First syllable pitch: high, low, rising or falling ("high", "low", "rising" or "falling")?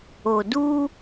low